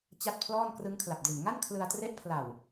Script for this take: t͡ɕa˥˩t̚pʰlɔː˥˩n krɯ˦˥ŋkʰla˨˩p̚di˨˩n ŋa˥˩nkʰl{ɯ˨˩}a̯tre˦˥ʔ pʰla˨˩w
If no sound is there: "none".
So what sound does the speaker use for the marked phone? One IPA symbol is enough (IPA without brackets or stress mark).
ɯ˧